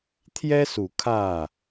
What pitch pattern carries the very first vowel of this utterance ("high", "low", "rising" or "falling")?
high